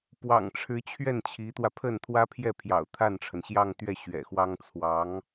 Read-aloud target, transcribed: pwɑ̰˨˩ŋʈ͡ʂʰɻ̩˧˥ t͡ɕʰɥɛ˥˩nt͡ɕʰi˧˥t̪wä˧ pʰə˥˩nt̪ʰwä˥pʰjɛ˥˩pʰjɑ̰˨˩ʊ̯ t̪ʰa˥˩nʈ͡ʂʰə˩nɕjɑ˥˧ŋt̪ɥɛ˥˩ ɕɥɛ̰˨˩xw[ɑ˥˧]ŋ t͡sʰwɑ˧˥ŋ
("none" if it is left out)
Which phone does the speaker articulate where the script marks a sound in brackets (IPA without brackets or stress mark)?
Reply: ɑ˥